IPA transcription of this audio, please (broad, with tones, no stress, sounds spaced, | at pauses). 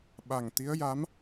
ɓ a˨˩ ŋ t̪ i˧˥ ə̯ j a˧˥ m